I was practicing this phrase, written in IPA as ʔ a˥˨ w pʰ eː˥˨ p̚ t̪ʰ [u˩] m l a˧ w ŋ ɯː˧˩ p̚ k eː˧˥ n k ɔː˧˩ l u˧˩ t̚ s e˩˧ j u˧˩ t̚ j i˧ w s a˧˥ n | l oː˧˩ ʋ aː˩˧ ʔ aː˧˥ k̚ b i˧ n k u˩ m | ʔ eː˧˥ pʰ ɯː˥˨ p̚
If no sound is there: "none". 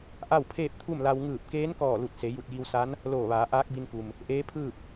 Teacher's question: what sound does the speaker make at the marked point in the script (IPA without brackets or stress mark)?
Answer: u˥˨